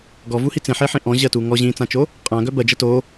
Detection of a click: absent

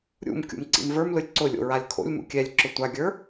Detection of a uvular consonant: absent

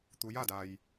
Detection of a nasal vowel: absent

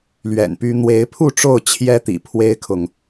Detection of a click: absent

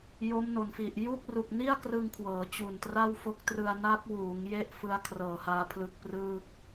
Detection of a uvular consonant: absent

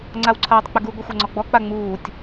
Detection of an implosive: absent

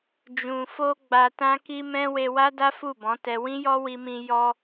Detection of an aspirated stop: absent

